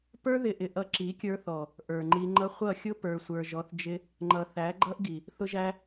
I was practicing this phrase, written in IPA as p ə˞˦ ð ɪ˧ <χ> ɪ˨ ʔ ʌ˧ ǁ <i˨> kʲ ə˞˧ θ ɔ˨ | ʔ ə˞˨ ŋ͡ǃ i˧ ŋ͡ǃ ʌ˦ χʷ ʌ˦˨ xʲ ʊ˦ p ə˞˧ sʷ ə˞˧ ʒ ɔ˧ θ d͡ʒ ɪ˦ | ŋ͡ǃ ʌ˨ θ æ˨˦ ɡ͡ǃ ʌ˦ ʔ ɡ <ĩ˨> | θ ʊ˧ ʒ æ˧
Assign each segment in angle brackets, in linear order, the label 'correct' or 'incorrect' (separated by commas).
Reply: incorrect, incorrect, incorrect